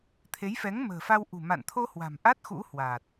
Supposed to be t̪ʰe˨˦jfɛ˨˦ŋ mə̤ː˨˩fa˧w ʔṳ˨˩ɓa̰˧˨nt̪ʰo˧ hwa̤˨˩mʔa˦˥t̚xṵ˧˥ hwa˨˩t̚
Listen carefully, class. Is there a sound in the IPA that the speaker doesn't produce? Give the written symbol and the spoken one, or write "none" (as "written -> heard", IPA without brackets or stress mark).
ɓ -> m